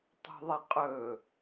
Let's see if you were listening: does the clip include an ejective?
yes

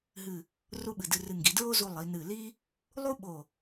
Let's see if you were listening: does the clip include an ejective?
no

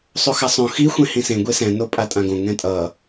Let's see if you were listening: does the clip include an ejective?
yes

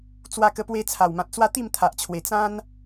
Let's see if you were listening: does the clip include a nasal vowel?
yes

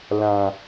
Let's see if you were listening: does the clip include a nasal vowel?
yes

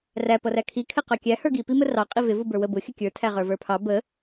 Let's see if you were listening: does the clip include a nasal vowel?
no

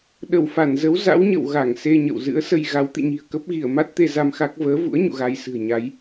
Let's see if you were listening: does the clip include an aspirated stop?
no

